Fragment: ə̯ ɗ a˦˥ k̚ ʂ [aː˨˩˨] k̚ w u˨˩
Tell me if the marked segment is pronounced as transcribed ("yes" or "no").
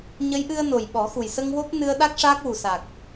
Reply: no